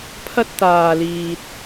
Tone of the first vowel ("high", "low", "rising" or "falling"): high